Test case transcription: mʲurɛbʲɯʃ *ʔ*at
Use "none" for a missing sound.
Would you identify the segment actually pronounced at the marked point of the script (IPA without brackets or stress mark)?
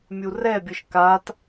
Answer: k